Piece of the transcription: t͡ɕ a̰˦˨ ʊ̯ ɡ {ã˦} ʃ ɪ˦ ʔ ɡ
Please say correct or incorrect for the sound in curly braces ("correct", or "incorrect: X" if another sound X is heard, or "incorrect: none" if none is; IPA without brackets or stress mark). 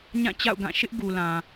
incorrect: ã˦˨